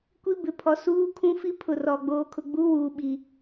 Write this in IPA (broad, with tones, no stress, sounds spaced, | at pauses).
kʷ i˦ b ɪ˨ pʰ ɔ˨ s uː˦ kʰ ũ˦ f i˦ pʰ ʊ˨ r ɔ˨ ɡ͡b oː˨ kʰ ʊ˨ ɡ͡b u˦ w uː˨ ɓ i˨